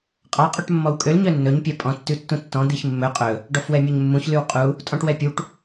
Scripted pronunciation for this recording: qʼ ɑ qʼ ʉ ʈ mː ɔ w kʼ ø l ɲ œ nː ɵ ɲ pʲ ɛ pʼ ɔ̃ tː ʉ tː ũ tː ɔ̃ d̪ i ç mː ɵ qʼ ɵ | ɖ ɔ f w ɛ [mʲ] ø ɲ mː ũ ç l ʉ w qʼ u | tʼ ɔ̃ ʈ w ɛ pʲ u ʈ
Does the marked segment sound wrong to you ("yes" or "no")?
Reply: no